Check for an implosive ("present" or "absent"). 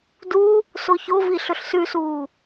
absent